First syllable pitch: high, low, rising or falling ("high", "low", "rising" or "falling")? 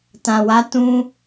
low